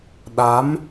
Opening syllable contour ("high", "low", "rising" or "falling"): rising